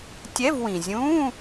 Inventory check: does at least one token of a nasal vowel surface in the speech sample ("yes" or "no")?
yes